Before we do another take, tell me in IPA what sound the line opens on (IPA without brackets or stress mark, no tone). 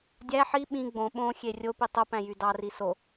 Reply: dʲ